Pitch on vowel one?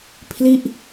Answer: falling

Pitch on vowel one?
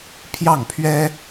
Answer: falling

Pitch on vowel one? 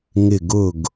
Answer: falling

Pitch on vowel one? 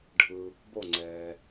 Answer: low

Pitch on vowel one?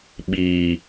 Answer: low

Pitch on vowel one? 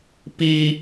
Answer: high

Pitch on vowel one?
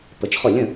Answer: rising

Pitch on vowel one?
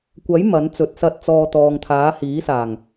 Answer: rising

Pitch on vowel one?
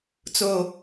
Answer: low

